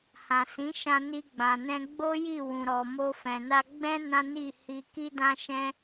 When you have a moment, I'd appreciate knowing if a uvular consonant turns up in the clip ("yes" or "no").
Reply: no